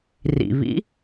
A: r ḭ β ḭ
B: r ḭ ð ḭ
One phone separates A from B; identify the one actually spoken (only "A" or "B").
A